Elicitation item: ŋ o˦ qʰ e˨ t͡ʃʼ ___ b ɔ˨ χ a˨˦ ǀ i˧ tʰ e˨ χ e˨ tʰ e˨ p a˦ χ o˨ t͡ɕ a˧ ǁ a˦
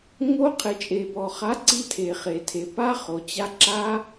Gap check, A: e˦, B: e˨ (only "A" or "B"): B